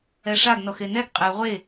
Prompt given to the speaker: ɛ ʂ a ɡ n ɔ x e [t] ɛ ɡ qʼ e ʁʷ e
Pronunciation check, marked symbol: incorrect: n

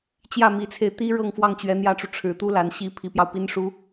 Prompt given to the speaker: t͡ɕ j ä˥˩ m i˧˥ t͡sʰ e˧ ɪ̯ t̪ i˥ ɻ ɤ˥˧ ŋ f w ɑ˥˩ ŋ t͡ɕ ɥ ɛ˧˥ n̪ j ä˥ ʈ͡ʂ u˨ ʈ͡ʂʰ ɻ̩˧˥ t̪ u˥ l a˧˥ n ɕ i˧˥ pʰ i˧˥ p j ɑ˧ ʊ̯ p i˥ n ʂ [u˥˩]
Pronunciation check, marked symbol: incorrect: u˥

